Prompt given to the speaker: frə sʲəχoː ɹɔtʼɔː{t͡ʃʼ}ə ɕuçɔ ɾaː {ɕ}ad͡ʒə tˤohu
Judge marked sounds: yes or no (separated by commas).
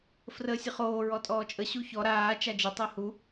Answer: yes, no